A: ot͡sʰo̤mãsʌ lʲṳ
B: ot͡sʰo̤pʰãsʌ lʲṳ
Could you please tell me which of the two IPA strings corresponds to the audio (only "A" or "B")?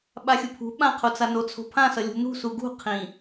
B